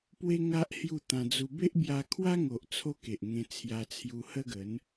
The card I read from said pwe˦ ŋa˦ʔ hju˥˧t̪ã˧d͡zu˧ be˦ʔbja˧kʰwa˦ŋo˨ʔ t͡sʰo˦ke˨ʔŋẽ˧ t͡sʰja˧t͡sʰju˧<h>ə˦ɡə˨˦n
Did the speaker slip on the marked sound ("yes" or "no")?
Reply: no